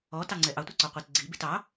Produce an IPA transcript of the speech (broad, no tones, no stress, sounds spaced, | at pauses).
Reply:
ɔ t ɑ ŋ͡ǀ ɛ ʔ ɑ tʷ ɛ ǀ ɔ qʷ i t ɡ͡ǀ i b i t ɑ